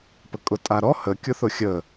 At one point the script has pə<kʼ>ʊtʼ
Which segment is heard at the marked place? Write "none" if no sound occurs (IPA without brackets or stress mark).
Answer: kʼ